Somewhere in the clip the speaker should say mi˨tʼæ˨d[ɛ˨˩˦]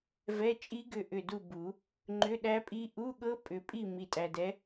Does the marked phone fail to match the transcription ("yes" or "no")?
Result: yes